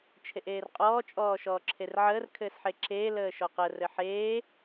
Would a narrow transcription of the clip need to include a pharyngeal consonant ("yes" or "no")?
yes